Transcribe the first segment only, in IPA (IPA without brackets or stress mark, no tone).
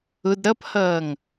ʊ